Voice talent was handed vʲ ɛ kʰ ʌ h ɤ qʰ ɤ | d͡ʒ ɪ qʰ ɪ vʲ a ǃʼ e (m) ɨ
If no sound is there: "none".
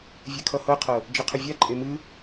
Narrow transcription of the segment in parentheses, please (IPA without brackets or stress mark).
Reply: m